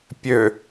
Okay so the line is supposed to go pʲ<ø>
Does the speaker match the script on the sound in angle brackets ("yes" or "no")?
yes